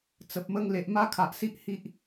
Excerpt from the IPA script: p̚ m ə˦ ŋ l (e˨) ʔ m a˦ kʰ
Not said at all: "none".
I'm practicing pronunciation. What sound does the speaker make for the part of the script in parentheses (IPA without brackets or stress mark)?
e˨